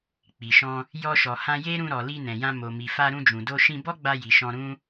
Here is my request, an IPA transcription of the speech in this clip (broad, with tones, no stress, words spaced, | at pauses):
k͡pi˨ʃɔ̃˧ | jɔ˧ʃɔ˨hã˧ je˦ɾũ˧ ɾɔ˨li˧ nɛ̃˨jã˧ mo˨mi˨ fa˧ɾũ˧d͡ʒũ˨do˧ ʃĩ˧bɔ˦ɡ͡ba˧ji˨ ʃɔ̃˧ɾũ˦